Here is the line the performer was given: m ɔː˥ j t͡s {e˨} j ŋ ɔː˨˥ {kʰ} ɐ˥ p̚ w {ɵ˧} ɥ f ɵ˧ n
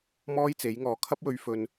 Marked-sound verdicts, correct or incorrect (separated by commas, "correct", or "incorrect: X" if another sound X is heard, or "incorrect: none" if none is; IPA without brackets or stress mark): incorrect: e˨˥, correct, correct